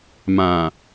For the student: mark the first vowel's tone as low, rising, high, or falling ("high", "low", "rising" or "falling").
low